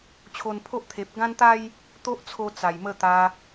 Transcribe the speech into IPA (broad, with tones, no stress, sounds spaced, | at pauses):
t͡ɕʰ o˧ n pʰ o˦ ʔ t̪ʰ e˨ p̚ ɡ ã˦ n t̪ a˦ j | t̪ o˦ ʔ t͡sʰ o˧ t͡s a˨˩ j m ə˧ t̪ a˧